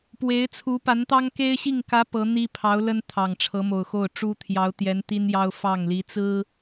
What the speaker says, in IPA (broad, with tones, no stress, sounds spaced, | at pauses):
p w e˧˥ ɪ̯ t͡sʰ u˧˥ p a˧˥ n t̪ ɑ˥ ŋ k e˥ ɪ̯ ɕ i˥˩ ŋ k ä˧˥ p ɤ˧˥ n̪ i˥ pʰ ɑ˧˥ ʊ̯ l ə˥ n t̪ʰ ɑ˨˩ ŋ ʈ͡ʂʰ ɤ˧˥ m o˨˩ ʊ̯ x o˥˩ ʊ̯ ʈ͡ʂ u˥ t̪ʰ j ɑ˧˥ ʊ̯ t̪ j ɛ˧˥ n t̪ i˥ n j ɑ˥ ʊ̯ f ɑ˥˩ ŋ l i˧˥ t͡s ɹ̩˥